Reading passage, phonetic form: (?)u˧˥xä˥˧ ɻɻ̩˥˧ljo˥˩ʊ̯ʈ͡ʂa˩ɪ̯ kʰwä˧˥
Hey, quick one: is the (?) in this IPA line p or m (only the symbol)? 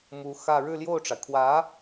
m